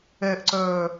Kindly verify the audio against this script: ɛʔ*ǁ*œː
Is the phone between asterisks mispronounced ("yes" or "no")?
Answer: yes